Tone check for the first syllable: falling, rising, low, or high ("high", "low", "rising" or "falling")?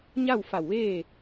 falling